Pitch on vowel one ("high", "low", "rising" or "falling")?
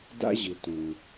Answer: high